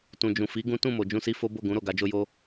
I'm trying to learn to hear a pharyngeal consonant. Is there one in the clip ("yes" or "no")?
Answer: no